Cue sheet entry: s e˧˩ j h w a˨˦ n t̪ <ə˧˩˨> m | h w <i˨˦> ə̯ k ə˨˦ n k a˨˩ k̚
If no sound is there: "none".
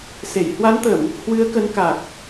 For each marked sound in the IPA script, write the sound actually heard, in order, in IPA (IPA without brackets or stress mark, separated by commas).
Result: ə˧˩˨, ɨ˨˦